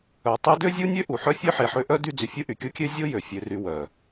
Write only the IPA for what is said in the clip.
œ˨ tˤ y˦ d ø˥ zʲ u˥ nʲ ø˥ ʔ u˩ ħ œ˥ fʲ ø˥ ħ e˨ ħ ø˥ ʔ œ˥ d y˦ d͡z y˨ fʲ u˦ ʔ y˩ kʲ o˦ kʲ ø˦ zʲ o˥ j ø˩ fʲ ø˨ r y˨ w œ˩

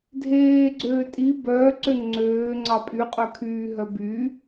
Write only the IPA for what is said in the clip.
dʱ eː ɡ͡ǀ øː tʼ i b œː ǀ ø ŋ͡ǀ øː ŋ͡ǀ ɑ pʼ y qʼ œ kʰ yː ɦ œ b y

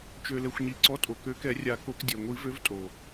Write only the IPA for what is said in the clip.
t͡ʃ ø˩ l ɛ˩ xʷ ɲ i˩ ǀ ɔ˨˦ tʼ o˩ k ø˨˦ k ɛ˨˩˦ rʲ a˨˩˦ k o˨˩˦ k dʲ ɛ˩ ŋʷ i˨˩˦ v ø˨˦ v tʼ o˩

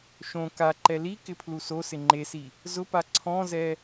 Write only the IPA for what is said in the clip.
ʃ õ k a ǃ ɛ l i k ɪ pʰ l u s o s ɪ ŋ͡ǃ e s i | z ʊ p a ǀʰ ɔ̃ z ɛ

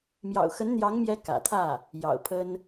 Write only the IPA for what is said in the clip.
m j ɑ̰˨˩ ʊ̯ x ə˧˥ n n̪ j ɑ˧˥ ŋ m j ɛ˧˥ k ä̰˨˩ t̪ʰ ä˥˩ | j ɑ̰˨˩ ʊ̯ pʰ ə˥ n

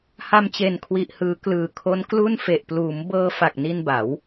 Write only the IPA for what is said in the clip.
h a˧ m t͡ɕ e˨˩ n kʰ w i˨˩ ʔ h ɯː˩˦ k l ɯː˨˩ kʰ o˦˥ n k l u˥˩ n f e˨˩ ʔ p l uː˩˦ m b ɤː˧ f a˨˩ k̚ n i˧ n b a˩˦ w

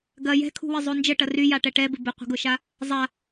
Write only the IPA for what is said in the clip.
ɡ ɐ j ɛ̤ kʰ ṳ w ɪ zˤ o n d͡ʒ ə ʈ ɐ r y j a ʈ ɛ ʈ ɛ b ɪ b ɪ qʷ ə̤ ɡ ʊ ʃ a | zˤ a

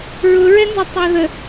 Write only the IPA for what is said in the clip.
ɹ ʊ ɹ ɛ n z ʌ tˤ æ ð ə

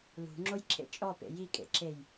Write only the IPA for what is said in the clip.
l ṳ ŋ͡ǁ o j ǁʰ ḛ t͡ʃʼ ɔ p ḛ j i kʼ ḛ ǁʰ e j

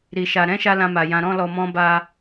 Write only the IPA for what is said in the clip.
ɾ i˨ ʃ a˨ ɾ ɛ̃˨˦ ʃ a˧ l ã˧ m a˨ j ã˧ ɾ ɔ̃˦ l ɔ˧ m ɔ̃˦ b a˧

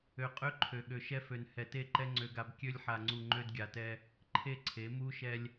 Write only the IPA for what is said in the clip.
ø˨ qʼ ø˦ ǃʰ ø˨ ɠ ø˨ ʃ ɛ˦ f ø˨ n h ɛ˨ t e˦˨ ǃ ɛ˦ ŋ͡ǀ ø˦ ɡ a˦ b kʲ ø˦ lʲ ħ a˨ ŋ͡ǀ u˨ ŋ͡ǃ ø˦ d ɡʲ a˨ t ɛ˦ | ǃʰ e˦ ǀʰ e˨˦ m u˦ ʃ ɛ˦ lʲ

